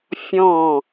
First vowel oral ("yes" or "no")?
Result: no